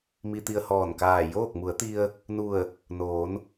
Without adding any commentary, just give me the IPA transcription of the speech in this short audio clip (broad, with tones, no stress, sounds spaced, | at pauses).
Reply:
m i˧ t̪ i˧ ə̯ h ɔː˧˩ n k aː˧˩ j oː˥˨ k̚ m u˩˧ ə̯ t̪ i˧ ə̯ | n u˧˩ ə̯ | n oː˩˧ n